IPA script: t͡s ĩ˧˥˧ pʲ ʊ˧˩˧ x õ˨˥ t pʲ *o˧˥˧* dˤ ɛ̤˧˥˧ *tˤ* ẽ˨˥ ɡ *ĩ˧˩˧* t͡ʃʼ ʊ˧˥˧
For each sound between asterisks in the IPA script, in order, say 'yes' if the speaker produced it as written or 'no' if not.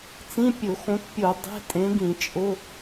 no, no, yes

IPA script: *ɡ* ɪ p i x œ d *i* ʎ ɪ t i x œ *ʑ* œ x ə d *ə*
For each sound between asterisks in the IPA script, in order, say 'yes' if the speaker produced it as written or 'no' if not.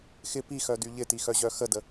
no, no, yes, yes

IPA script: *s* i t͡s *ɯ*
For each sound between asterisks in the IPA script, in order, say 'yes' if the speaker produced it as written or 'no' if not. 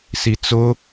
yes, no

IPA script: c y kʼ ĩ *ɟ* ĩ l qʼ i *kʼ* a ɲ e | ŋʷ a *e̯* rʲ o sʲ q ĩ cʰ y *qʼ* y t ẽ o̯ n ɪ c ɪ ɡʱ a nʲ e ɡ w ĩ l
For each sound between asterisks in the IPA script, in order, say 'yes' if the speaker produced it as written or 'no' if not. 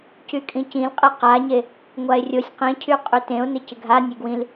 no, no, yes, yes

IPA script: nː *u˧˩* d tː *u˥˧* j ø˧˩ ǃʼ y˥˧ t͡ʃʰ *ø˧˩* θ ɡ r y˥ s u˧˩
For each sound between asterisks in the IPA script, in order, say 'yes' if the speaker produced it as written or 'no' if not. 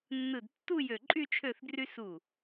no, yes, no

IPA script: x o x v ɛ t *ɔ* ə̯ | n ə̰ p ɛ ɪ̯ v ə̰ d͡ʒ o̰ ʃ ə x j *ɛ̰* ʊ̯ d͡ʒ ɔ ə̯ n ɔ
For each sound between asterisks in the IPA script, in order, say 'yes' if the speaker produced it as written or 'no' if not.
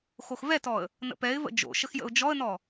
yes, no

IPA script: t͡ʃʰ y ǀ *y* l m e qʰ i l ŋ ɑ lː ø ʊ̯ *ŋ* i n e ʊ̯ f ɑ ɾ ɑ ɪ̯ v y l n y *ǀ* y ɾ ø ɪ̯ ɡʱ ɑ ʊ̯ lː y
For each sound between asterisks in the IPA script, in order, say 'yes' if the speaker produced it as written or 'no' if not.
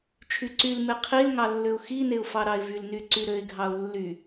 yes, no, yes

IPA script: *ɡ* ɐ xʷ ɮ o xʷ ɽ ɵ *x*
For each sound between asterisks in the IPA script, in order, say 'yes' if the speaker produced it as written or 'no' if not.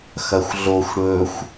no, no

